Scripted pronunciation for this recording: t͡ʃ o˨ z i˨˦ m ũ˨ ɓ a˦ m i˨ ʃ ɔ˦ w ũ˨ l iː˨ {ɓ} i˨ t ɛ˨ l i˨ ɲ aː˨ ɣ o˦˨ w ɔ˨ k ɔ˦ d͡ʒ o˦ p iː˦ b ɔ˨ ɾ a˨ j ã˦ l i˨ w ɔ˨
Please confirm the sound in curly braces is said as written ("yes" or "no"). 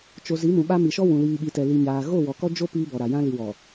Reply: yes